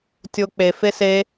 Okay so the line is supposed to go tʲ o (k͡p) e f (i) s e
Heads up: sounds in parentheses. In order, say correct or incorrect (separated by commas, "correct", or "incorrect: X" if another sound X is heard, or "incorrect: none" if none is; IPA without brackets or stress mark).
correct, incorrect: e